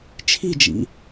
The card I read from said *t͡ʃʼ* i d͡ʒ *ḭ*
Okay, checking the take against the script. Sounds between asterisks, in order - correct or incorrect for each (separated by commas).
incorrect, correct